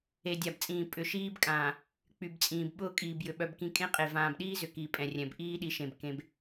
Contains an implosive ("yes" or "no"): yes